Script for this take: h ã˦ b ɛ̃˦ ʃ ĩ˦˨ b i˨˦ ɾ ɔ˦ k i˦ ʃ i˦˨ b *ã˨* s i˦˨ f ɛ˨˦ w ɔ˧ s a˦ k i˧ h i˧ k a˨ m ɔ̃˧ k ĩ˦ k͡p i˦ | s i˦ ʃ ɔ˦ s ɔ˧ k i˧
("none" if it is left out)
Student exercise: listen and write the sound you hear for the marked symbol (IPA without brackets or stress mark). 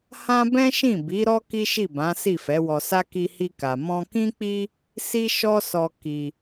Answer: ã˨˦